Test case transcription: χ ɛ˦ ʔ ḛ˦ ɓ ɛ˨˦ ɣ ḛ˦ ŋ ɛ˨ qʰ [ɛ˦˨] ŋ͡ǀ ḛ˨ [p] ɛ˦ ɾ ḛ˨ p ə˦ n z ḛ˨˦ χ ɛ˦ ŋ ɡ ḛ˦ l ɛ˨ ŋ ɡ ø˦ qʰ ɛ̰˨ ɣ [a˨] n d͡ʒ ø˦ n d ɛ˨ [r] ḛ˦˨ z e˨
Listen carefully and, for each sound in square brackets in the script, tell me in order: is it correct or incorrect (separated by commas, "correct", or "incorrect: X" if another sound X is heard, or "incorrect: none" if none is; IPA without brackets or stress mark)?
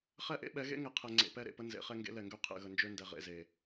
incorrect: ɛ˨, correct, incorrect: ə˨, incorrect: ʁ